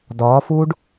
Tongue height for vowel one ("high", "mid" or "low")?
low